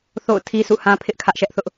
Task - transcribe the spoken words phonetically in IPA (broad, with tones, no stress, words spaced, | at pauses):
θo̰˦˨ʊ̯tʰi˦sʰṵ˦˨hã˦ pʰɪ˦ʔkʰä˦ʔʃɛ˦ʔθʊ˦ʔ